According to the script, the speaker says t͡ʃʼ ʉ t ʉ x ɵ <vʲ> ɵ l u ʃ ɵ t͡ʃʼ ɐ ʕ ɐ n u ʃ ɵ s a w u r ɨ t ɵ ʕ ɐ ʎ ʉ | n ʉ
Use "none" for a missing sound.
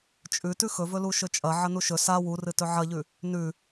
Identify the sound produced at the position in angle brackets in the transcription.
v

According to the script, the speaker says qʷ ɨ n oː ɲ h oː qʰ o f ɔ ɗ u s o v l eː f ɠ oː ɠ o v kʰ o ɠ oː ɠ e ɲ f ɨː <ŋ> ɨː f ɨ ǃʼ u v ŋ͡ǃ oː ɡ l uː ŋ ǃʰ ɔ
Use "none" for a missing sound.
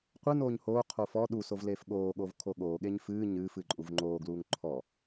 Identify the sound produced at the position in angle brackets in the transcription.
ɲ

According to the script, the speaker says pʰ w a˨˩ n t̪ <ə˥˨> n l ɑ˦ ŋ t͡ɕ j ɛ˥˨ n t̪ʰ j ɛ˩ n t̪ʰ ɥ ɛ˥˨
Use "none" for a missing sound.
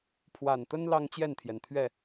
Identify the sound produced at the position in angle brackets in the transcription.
ə˦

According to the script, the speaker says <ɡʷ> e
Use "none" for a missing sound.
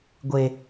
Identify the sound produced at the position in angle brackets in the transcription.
ɡʷ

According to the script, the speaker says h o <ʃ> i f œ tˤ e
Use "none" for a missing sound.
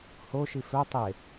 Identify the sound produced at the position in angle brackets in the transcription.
ʃ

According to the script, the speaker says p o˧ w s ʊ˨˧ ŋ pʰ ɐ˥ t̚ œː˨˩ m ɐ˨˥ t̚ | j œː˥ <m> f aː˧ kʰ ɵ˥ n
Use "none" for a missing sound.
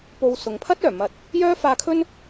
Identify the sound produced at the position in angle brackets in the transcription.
none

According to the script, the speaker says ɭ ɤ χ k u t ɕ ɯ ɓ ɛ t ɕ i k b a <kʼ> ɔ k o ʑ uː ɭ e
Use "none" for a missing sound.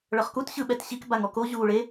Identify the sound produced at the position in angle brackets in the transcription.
ŋ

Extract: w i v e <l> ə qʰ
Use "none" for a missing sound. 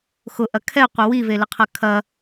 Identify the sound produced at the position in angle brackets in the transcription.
l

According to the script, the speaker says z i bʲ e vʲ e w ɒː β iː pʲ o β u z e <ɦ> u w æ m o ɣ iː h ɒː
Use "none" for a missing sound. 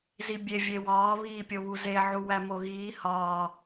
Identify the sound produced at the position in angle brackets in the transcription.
ʕ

